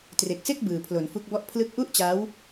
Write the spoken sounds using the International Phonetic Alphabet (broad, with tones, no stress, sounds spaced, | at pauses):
t r e˨˩ k̚ s e˥˩ k̚ b ɯː˨˩ pʰ l o˩˦ n f u˦˥ k̚ b ɔ˥˩ ʔ pʰ l ɯ˦˥ k̚ ʔ u˥˩ ʔ t͡ɕ a˦˥ w